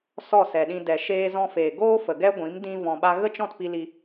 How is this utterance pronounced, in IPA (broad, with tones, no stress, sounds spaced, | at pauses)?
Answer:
s ɔ˦˨ s ɛ˨ ɗ ĩ˧ d ɛ˨ ʃ eː˧ z ɔ̃˧ f eː˨ ɡ oː˦ f ə˨ ɡ ɛ˦ ɡʷ ĩ˨˦ m d ĩ˦ v ɔ̃˧ ɓ a˦ ɣ ə˦ t͡ʃ ɔ̃˦˨ t p i˧ l i˧